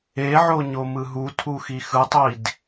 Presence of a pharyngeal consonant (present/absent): present